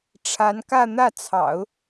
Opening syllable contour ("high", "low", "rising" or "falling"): rising